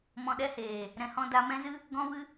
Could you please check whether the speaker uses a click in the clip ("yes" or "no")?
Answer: no